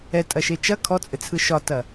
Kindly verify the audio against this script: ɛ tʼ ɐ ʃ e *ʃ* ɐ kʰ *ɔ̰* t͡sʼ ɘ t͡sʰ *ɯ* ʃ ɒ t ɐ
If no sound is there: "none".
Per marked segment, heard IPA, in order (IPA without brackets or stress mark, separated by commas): t͡ʃ, ɔ, ɯ